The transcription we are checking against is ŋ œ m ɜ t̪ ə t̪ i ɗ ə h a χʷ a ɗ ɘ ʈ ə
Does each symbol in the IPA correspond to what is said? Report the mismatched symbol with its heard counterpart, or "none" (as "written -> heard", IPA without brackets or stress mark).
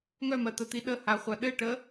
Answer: none